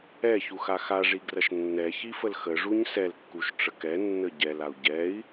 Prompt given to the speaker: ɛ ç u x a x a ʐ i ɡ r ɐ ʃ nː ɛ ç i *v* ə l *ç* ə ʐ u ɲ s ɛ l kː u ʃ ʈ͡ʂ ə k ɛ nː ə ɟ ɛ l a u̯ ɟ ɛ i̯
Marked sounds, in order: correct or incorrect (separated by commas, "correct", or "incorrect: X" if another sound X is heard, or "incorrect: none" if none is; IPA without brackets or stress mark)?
incorrect: f, incorrect: x